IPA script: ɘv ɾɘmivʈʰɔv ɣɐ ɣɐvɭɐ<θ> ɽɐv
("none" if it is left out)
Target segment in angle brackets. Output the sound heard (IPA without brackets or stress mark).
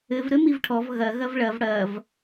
v